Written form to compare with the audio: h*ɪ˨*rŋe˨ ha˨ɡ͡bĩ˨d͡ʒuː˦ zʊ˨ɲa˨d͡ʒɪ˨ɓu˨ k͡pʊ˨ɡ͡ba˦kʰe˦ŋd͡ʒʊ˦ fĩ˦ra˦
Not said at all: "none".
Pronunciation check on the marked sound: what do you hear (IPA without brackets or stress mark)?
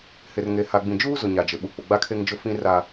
ɪ˨